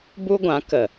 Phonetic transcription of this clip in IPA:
bu˦ɡʷã˨˦ kə˨

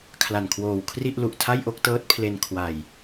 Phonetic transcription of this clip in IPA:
kʰla˨˩nkʰwoː˨˩wkʰri˥˩ʔ lu˨˩ʔtʰa˥˩jʔo˥˩k̚tɤː˦˥t̚ pʰle˧n kʰwa˨˩j

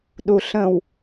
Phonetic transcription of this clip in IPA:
ɗuɬə̃w

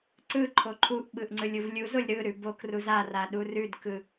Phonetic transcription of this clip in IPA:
ǀɯ ǃʰoǃʰuʔɓɯʔ ŋ͡ǀɯlʲuvlʲuzolʲ ɾɯɾʉ bok ruzara ɗurʉdkɯ

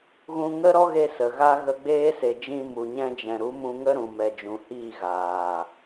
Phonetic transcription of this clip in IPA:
ɣũ˧ŋə˦ɾɔ˦ɣe˧ sə˨ɣa˦ ɣə˧ ɡ͡beː˦se˨d͡ʒĩ˧ mu˨ɲɛ̃˧d͡ʒɛ̃˨ ɾu˨˦mũ˧ ŋə˦ ɾũ˨mɛ˨d͡ʒũ˨hiː˦˨ ɣaː˨

